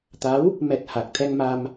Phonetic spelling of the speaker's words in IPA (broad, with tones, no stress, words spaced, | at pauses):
t̪a˨˦w | mɛ˨˩t̚ ha˨˩k̚t̪ʰɛ˧ŋma˧m